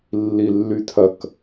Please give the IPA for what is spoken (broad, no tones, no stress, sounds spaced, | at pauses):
lː i lː y tʰ ɐ k